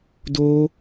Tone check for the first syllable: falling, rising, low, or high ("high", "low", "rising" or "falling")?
high